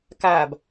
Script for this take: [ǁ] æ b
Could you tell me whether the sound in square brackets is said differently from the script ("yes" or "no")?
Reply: yes